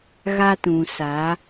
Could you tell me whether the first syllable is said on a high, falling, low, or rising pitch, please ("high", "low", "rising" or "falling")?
high